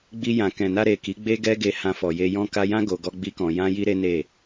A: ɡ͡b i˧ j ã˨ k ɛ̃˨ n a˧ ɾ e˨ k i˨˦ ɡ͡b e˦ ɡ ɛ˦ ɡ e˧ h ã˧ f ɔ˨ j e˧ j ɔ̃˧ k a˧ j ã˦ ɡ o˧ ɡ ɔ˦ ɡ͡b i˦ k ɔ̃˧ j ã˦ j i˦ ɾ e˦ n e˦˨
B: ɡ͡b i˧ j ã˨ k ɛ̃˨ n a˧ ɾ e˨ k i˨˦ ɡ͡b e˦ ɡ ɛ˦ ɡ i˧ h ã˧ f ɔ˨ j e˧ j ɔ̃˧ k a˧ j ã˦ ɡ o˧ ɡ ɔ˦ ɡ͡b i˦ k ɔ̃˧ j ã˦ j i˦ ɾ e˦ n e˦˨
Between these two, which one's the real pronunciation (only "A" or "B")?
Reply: A